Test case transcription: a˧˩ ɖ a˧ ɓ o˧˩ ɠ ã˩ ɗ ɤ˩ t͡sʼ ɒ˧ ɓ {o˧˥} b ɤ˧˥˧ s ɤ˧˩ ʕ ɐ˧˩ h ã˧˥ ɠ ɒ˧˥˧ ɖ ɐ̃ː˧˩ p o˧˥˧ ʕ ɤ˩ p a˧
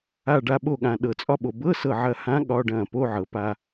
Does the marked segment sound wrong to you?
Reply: yes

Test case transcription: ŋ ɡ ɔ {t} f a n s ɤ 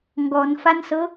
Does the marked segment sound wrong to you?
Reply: yes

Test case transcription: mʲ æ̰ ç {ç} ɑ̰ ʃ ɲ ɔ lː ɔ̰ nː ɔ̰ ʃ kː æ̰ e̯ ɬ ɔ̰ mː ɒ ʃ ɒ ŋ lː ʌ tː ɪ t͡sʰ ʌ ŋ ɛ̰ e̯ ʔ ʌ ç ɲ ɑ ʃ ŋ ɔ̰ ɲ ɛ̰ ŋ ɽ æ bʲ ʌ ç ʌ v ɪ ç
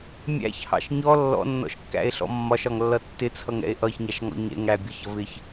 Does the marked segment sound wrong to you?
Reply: yes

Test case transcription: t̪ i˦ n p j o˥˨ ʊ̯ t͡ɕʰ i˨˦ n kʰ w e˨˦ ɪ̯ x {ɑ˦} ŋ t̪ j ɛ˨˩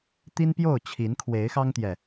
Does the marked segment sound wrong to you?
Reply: no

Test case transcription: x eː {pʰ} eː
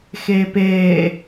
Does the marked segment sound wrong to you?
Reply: yes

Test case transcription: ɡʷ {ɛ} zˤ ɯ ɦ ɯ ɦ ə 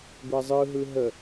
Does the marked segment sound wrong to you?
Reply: no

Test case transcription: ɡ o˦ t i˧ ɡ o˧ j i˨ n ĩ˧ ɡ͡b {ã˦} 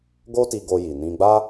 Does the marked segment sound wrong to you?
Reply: yes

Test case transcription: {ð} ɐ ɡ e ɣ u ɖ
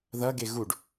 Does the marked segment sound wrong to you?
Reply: no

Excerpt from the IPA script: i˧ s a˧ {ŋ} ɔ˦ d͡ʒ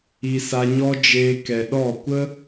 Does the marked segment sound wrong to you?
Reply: yes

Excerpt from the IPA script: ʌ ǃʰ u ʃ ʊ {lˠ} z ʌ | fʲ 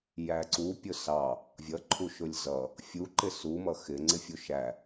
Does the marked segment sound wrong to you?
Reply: yes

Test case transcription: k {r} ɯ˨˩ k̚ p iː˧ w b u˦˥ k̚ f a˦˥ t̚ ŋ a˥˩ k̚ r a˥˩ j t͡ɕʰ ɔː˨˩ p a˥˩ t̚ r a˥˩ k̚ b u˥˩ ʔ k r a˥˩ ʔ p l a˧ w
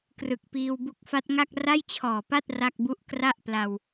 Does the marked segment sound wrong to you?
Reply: no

